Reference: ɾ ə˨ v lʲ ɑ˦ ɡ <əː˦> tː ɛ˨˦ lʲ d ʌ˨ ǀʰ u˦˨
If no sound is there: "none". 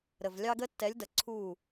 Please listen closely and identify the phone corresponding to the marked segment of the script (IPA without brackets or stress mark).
ə˦